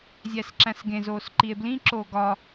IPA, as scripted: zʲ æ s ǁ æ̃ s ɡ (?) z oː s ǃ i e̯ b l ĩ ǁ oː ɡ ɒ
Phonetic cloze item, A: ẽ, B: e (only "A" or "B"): A